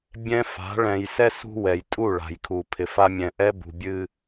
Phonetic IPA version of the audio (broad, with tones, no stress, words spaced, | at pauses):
bʲɛ̃˦ fa̤˨˦ɭɛ̃˨j sɛ˦ sṳ˦ wɛ˨jtʼu˦˨ ɭa̤˨jkʰu˨pʰɪ˨fa˦ mʲɛ̃˨ʔɛ˦bṳ˨bʲɨ˦